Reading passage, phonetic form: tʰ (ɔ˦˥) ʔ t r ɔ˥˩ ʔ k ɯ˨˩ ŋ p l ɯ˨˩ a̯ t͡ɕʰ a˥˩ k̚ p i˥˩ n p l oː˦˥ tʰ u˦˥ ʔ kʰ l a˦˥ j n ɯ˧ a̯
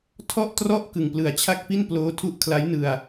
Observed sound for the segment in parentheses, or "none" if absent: ɔ˥˩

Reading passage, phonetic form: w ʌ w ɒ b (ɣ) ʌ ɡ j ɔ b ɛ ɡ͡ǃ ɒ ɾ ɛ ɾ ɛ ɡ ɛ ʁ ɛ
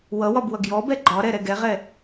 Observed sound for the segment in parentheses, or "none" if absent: w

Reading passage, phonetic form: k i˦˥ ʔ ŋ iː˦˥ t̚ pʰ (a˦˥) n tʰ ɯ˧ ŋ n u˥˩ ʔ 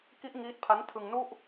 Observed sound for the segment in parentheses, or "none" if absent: a˦˥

